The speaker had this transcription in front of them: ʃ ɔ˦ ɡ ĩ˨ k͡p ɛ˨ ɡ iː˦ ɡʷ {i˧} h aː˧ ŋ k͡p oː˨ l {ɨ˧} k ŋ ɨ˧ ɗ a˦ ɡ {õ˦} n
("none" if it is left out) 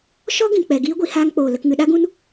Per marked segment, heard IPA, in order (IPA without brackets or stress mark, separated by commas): i˧, ə˧, ũ˦